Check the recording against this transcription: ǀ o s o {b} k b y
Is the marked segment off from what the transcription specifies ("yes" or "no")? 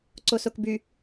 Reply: yes